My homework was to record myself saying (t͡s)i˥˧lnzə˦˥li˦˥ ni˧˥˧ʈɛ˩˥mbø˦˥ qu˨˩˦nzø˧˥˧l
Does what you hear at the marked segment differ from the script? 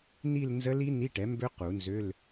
yes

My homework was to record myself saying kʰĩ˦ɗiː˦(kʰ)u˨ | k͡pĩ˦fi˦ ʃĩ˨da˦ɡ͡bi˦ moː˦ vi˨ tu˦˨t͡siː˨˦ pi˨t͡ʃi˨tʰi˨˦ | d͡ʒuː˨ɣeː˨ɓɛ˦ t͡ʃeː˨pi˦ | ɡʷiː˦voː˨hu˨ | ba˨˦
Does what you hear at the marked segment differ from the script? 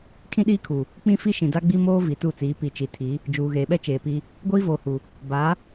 no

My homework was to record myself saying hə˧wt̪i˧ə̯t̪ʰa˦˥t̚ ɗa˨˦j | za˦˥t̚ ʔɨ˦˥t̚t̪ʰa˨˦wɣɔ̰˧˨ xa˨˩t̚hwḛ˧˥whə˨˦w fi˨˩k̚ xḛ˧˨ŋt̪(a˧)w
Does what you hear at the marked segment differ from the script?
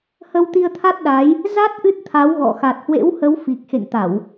yes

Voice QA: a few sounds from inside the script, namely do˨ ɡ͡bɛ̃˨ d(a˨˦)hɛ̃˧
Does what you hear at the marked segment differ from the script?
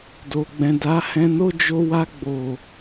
no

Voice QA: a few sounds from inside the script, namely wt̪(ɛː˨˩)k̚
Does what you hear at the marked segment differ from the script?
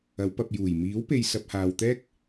yes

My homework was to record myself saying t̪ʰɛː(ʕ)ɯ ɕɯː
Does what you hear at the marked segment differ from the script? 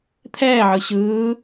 no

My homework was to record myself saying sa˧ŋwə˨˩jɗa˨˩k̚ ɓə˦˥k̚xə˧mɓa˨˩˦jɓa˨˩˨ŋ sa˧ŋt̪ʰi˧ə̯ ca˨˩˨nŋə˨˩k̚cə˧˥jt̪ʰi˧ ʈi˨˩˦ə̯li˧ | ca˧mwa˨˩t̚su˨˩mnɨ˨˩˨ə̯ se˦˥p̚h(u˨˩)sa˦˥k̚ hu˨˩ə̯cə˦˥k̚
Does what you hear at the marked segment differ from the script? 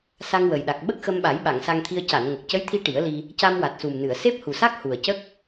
no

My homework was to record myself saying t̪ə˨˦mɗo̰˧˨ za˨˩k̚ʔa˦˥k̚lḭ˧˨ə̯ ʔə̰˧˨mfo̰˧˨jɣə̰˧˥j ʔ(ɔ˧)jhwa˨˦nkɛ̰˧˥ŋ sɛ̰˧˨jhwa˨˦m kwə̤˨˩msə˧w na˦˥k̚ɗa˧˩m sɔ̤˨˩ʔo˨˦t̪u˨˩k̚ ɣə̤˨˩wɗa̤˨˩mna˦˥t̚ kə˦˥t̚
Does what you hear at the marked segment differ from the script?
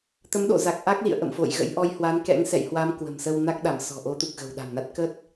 no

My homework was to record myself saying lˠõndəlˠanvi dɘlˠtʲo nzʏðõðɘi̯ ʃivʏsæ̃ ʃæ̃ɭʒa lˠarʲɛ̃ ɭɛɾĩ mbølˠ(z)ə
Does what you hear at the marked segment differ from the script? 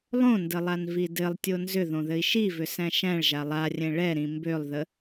yes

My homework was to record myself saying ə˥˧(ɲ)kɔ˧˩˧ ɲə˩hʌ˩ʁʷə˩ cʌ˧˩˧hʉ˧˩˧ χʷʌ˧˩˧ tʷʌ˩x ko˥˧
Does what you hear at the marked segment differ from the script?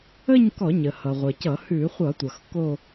no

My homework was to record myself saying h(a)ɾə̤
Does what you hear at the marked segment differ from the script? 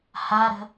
no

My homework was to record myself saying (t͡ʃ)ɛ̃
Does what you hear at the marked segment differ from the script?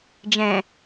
yes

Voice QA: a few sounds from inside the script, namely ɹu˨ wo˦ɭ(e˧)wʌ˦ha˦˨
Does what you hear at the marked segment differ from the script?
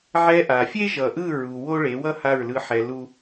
yes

